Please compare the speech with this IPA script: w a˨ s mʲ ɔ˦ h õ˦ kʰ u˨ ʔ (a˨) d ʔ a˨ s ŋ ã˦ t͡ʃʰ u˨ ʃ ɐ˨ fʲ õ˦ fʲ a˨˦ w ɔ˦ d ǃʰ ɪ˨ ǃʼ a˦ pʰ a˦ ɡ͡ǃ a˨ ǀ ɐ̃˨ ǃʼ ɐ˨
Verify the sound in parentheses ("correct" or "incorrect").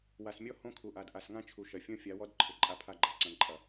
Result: correct